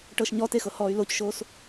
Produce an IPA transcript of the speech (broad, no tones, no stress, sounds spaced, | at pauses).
ʈ ɤ ʃ ɲ ɔ t e x ɤ h ɔː y̯ l o c ʃ oː s